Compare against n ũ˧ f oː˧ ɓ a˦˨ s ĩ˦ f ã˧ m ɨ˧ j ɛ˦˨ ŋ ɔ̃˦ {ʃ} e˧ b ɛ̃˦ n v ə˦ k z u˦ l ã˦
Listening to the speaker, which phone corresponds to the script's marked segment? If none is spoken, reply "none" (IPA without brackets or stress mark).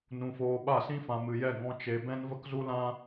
t͡ʃ